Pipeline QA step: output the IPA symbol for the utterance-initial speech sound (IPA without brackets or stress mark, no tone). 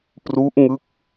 p